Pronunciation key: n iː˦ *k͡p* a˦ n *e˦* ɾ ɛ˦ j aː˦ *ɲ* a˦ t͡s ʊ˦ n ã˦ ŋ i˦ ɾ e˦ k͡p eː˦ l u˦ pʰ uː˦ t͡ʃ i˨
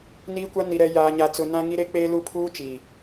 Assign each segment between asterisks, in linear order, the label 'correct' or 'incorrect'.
incorrect, incorrect, correct

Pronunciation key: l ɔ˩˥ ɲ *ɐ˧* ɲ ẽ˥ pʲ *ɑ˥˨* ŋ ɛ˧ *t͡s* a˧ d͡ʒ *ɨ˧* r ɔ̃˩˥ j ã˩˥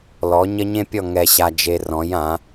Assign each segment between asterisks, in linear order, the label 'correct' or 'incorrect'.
incorrect, incorrect, incorrect, incorrect

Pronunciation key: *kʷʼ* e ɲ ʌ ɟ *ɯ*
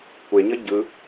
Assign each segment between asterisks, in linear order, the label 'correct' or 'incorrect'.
incorrect, correct

